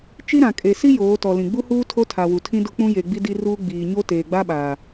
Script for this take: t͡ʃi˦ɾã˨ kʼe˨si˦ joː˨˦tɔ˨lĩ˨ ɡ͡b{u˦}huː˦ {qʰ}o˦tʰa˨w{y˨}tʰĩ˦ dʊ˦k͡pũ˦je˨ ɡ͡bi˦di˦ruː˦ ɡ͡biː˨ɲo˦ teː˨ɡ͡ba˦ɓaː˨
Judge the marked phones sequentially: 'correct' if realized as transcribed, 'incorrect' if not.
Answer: correct, incorrect, incorrect

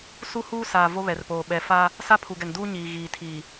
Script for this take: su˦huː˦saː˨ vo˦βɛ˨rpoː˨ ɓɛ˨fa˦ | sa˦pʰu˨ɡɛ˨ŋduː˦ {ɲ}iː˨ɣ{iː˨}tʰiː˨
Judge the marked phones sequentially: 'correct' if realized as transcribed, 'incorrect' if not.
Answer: correct, correct

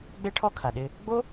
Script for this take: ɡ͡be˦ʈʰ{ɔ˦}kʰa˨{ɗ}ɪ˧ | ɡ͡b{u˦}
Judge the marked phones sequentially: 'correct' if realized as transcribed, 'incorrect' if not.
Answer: correct, correct, incorrect

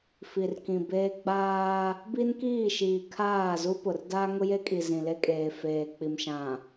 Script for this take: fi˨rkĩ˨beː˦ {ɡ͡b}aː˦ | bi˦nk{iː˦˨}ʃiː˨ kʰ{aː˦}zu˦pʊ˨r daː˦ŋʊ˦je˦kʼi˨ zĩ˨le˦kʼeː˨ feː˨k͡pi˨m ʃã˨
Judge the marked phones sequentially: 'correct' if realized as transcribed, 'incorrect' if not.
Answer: correct, correct, incorrect

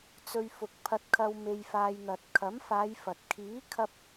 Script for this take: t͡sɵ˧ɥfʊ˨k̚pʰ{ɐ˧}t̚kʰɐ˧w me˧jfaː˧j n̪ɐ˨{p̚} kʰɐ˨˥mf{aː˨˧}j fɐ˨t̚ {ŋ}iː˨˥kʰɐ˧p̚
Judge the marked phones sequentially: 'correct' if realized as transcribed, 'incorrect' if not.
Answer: correct, incorrect, correct, incorrect

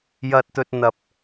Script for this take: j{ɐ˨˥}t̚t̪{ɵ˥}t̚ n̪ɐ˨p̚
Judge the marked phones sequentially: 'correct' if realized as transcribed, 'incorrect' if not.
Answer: incorrect, incorrect

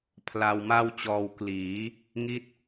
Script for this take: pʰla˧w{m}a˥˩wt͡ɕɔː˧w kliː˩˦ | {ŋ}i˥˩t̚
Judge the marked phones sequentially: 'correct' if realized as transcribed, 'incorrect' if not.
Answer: correct, correct

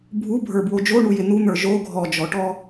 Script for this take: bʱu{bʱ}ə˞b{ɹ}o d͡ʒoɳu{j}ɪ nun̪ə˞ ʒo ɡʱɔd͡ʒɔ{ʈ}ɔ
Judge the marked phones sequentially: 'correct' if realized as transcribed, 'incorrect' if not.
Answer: correct, incorrect, correct, correct

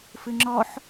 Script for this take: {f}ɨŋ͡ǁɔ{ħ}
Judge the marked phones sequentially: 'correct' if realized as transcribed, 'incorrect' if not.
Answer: correct, correct

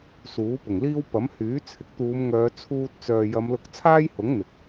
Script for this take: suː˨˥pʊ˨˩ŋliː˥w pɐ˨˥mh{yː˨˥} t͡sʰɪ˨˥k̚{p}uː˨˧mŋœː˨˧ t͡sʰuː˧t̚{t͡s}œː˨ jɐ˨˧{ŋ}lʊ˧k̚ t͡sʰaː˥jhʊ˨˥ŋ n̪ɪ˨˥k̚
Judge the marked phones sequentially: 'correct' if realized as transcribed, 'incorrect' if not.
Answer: correct, incorrect, correct, incorrect

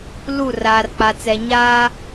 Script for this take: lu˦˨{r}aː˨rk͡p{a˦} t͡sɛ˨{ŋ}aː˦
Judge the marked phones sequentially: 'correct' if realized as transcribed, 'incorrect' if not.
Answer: correct, incorrect, incorrect

